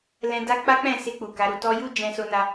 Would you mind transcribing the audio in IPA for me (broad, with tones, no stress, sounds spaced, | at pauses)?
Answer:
l ɛ̃˧ d a˦ k͡p a˦ k͡p ɛ̃˦˨ s e˧ k͡p u˨ k a˨˦ ɾ u˧ t ɔ˧ j u˦ d͡ʒ ɛ̃˧ s o˧ n a˧